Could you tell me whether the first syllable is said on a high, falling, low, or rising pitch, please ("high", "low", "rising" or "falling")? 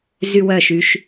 high